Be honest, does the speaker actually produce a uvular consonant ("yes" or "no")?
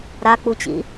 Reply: no